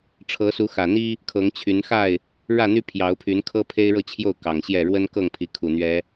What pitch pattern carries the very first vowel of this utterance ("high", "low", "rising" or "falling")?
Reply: rising